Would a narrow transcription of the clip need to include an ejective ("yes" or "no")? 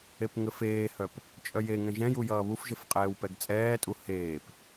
yes